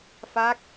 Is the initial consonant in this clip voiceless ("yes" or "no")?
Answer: yes